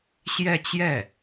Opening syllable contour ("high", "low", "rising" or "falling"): falling